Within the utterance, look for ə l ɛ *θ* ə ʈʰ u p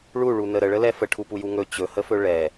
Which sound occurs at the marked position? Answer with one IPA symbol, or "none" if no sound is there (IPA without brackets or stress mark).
f